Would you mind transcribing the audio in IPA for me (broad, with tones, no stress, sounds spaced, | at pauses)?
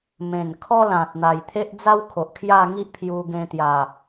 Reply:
m ẽ˨˩ n kʰ ɔ˦ l ã˨ t̚ n̪ a˨˩ j t̪ʰ e˦ ʔ d͡z a˦ w kʰ o˨ ʔ kʰ j a˥˧ ŋ i˦ ʔ pʰ j u˧ ɡ ẽ˧ t̪ j a˨˩